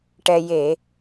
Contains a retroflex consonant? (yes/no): yes